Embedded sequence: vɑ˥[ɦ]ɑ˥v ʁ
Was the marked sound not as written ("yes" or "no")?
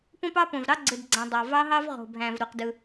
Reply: no